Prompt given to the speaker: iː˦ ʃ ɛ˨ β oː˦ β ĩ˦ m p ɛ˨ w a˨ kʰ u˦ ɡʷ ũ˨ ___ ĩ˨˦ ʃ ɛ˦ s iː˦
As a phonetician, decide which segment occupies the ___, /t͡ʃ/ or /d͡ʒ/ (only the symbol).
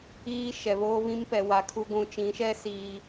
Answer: t͡ʃ